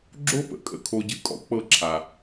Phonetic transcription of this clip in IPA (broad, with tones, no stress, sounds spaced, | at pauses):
ɡ͡ǁ o˦ p ə̰˨ kʼ ə̰˨ kʰ o˨ ɟ ɨ˨ kʼ ɔ̰˦ k͡p ɤ˦˨ ǁʰ a˨